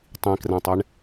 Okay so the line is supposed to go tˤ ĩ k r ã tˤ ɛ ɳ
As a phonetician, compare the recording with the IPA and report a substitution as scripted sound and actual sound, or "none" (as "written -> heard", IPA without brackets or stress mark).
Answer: none